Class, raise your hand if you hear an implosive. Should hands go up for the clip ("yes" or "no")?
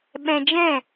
yes